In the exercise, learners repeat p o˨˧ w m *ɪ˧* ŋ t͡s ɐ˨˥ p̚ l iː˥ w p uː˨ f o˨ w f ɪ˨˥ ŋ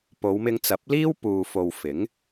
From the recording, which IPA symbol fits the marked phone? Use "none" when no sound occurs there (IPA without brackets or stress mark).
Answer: ɪ˧